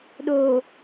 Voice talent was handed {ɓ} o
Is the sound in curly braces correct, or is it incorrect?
incorrect